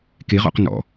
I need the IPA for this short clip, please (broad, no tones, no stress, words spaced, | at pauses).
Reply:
keʁɔ̰q nɔ̰